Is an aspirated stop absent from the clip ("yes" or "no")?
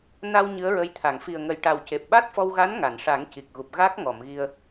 no